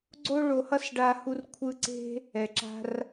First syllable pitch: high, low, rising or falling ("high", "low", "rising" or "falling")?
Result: high